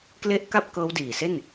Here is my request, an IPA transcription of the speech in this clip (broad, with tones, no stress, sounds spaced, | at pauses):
k l e˦˥ ʔ k a˥˩ p̚ k ɤː˦˥ w d iː˨˩ s e˥˩ n